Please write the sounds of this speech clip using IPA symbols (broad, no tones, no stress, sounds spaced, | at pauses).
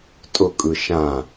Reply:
tʼ ʊ kʼ ɯ ʃ ã